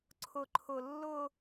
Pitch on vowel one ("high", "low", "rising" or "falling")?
low